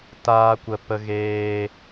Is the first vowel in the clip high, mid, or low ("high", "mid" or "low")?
low